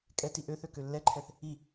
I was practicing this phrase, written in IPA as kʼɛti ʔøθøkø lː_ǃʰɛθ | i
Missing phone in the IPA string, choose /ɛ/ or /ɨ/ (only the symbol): ɛ